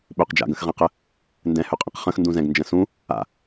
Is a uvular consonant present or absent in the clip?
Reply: present